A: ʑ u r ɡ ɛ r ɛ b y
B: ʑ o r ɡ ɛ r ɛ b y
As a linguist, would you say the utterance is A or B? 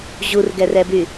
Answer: A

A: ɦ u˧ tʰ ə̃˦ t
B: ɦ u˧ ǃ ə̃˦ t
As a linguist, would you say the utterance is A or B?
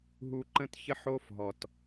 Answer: B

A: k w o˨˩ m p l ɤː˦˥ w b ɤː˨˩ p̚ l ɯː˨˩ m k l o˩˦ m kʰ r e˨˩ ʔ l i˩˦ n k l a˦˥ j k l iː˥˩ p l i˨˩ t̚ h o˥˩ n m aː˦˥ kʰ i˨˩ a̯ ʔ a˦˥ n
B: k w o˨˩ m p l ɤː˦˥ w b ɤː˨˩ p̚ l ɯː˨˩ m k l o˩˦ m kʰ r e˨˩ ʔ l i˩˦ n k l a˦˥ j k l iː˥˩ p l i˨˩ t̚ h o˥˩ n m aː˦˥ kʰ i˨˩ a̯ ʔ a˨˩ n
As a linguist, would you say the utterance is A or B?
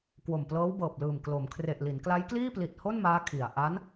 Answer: A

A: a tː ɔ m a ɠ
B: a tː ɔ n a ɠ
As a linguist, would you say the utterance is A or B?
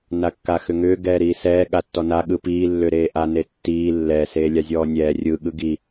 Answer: B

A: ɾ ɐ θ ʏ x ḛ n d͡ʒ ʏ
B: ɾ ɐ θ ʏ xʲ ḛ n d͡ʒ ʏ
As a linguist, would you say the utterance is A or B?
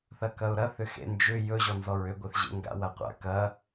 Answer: A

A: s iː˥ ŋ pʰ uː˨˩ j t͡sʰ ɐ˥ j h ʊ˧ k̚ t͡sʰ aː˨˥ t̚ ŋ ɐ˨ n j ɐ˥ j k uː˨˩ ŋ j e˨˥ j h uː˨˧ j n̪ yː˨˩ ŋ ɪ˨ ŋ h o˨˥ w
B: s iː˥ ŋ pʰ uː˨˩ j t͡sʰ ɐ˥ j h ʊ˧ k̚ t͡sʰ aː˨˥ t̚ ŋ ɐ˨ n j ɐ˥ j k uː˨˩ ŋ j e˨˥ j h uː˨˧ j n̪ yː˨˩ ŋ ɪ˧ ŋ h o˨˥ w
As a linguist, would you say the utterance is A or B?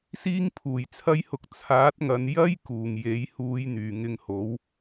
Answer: B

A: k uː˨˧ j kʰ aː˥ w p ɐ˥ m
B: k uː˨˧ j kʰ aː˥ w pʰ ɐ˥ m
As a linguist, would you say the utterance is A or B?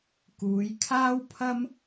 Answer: B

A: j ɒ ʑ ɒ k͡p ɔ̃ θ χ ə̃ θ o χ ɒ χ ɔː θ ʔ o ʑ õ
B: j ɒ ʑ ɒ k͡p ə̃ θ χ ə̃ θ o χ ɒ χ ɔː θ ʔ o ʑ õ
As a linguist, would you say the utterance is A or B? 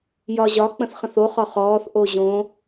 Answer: B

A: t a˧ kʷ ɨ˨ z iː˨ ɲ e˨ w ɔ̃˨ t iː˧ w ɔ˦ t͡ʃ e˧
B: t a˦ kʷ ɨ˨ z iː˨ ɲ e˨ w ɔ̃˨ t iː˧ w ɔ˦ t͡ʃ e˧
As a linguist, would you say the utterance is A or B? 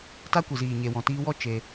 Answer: B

